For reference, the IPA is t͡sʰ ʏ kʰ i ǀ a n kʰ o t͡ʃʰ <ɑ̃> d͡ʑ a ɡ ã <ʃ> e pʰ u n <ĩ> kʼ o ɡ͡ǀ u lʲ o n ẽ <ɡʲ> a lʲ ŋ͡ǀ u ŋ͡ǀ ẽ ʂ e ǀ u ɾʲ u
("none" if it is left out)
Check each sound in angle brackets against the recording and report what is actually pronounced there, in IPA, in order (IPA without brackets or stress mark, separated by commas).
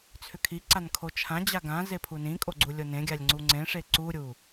ã, z, ĩ, ɡʲ